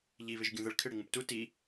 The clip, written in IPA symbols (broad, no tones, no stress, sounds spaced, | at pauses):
ʎ i β ɪ ʒ ɡʲ ũ ð ə ɭ kʰ ɪ ɽ ɪ ŋ ũ p t u t i